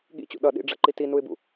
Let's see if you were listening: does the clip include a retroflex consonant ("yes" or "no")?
yes